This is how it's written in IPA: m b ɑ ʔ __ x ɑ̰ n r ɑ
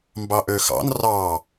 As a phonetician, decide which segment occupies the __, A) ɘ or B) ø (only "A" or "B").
B